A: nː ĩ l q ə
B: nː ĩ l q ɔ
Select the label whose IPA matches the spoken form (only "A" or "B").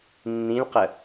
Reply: A